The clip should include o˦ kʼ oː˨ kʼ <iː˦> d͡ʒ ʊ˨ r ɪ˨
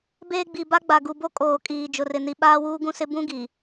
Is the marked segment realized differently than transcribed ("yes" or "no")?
yes